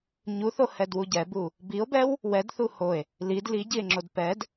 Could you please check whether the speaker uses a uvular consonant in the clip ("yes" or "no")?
no